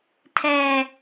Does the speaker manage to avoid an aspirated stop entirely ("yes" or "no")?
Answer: no